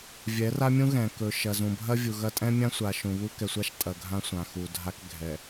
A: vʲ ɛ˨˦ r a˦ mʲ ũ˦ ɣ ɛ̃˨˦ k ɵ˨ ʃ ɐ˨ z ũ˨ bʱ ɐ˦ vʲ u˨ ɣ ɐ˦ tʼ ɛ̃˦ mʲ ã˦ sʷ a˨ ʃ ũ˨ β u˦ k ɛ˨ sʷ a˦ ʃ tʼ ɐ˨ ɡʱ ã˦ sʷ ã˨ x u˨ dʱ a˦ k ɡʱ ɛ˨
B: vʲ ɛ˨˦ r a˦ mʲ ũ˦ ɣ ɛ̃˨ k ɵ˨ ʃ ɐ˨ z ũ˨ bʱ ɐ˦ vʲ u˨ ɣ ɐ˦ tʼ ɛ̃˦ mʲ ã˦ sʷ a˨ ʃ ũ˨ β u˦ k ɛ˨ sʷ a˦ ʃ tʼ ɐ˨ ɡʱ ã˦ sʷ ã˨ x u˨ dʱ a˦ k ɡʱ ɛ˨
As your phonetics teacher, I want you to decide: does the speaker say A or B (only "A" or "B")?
B